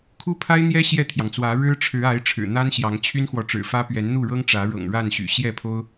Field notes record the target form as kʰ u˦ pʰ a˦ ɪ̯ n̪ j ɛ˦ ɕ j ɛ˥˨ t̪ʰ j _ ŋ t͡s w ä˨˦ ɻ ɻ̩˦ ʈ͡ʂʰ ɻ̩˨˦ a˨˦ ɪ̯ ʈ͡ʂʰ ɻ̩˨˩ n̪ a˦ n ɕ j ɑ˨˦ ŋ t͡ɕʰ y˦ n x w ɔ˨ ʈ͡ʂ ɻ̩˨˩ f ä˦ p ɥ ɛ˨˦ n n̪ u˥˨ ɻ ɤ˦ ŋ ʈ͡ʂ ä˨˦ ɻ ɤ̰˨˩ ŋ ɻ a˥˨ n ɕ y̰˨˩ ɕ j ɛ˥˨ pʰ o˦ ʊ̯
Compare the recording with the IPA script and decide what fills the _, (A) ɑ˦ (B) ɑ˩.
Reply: B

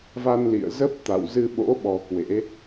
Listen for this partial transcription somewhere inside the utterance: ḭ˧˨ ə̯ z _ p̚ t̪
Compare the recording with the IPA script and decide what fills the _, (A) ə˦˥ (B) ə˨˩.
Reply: A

